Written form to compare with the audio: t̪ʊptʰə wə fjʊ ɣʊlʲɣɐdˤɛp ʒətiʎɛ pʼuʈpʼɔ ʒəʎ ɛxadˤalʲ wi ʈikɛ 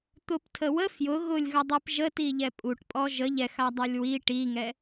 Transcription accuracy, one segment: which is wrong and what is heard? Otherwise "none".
k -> ŋ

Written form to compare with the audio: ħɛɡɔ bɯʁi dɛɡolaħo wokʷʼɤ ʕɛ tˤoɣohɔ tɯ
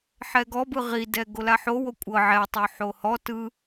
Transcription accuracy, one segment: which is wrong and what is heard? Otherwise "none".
ɣ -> ħ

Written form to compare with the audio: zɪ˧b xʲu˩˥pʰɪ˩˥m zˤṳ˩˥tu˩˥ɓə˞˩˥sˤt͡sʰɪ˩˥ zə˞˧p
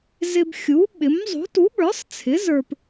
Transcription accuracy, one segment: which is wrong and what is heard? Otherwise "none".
pʰ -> ɓ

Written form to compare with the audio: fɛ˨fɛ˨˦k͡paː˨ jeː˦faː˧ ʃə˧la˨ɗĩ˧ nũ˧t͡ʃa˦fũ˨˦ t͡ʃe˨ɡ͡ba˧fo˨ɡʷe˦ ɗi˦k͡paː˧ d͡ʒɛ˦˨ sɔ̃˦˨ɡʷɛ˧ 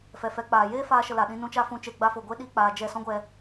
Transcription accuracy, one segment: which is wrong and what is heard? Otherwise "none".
ɔ̃˦˨ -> ɔ̃˦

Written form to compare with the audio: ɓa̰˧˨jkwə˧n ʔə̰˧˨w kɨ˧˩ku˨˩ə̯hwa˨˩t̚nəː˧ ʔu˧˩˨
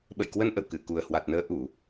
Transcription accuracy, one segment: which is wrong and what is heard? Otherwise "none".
a̰˧˨ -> ə̰˧˨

